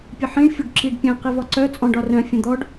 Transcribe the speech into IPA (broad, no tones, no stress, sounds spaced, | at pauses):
pʲ ə ħ ĩ ɳ fʲ ʊ ɖ ǁ i ɖ pʲ œ̃ q i v ɒ ǀ œ t͡sʼ ɔ̃ ɖ ɒ r œ̃ fʲ ə̃ d̪ ɔ ɖ